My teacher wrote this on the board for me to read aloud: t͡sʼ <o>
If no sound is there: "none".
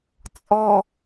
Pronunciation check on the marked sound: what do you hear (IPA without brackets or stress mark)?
ɔ